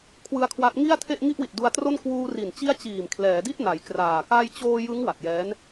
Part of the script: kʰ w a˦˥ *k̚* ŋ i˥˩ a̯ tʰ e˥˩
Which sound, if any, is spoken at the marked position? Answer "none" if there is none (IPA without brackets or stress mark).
t̚